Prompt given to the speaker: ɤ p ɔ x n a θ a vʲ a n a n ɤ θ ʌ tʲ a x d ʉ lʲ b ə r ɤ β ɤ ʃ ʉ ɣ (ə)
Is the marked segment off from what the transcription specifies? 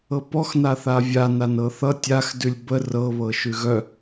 yes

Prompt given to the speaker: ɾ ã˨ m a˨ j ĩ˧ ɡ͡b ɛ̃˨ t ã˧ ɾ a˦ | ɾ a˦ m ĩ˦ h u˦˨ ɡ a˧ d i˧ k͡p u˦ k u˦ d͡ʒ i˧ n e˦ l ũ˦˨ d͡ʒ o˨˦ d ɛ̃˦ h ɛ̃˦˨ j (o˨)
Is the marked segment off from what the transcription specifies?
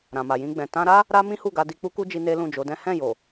no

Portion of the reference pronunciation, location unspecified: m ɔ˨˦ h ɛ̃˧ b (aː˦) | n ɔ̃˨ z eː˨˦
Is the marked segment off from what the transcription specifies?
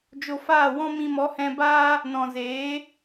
no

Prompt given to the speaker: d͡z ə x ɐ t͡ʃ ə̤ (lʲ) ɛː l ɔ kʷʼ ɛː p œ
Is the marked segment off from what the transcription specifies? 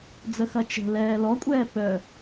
yes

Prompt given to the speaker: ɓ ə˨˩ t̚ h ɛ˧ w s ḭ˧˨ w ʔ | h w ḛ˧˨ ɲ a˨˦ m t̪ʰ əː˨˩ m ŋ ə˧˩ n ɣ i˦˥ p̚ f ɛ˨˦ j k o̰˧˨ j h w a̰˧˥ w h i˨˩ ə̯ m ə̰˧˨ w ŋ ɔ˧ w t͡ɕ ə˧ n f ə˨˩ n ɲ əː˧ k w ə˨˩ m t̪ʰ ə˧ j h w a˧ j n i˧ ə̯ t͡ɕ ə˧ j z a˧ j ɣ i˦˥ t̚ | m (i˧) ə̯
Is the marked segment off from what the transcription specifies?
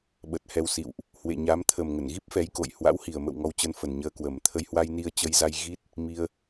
no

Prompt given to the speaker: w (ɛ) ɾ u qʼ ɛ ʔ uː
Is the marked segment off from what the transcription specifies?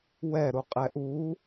no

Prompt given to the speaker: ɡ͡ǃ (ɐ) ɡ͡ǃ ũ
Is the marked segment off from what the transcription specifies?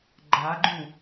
yes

